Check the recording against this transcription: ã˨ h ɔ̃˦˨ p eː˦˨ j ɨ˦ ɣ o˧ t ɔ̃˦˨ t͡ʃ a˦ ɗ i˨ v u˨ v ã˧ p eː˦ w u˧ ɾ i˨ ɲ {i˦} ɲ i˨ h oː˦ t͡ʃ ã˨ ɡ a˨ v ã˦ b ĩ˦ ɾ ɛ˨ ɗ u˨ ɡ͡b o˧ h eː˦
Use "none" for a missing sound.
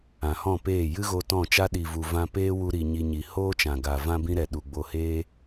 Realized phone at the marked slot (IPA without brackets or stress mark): i˧